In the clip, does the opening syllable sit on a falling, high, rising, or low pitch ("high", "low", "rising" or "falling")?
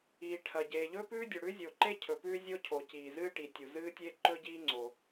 low